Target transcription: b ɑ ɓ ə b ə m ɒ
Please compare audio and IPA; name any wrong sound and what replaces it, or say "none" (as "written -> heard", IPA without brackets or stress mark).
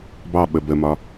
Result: none